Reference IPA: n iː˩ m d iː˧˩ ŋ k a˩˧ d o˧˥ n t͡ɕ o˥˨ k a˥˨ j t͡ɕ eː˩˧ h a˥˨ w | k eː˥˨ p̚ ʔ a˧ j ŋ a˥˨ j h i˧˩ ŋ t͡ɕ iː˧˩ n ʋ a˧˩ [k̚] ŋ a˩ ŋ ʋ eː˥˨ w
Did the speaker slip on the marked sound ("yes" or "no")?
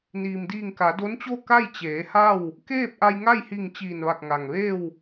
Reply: no